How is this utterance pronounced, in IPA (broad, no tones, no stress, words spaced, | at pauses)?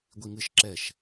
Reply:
ɡʷiŋɨʃ ǁɛʃ